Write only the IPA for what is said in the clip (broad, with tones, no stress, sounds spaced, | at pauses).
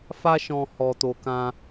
f a˦ ʃ ɔ̃˧ h ɔ˧ t o˧ k ã˦